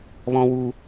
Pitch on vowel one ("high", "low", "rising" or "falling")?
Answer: high